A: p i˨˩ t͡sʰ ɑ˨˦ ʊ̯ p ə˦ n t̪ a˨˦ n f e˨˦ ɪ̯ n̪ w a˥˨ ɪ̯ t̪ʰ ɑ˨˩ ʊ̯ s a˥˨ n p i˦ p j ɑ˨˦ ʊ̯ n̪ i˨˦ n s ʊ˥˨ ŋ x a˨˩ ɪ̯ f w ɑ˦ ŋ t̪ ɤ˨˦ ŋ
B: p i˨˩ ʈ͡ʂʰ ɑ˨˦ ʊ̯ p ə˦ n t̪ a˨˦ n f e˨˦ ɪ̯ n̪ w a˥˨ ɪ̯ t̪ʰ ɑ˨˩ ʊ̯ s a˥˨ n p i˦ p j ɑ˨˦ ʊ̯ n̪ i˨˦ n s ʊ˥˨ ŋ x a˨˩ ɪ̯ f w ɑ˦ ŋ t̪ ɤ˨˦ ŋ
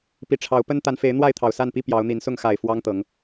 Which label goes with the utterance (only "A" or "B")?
B